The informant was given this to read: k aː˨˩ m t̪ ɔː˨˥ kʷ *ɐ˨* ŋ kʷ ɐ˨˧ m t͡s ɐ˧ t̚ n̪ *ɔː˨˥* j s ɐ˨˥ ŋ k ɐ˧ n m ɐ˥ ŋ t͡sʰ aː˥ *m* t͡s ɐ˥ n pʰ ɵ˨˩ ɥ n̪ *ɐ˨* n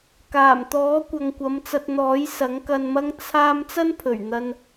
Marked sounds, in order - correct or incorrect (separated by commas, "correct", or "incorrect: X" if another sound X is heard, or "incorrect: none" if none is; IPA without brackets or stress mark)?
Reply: correct, correct, correct, incorrect: ɐ˧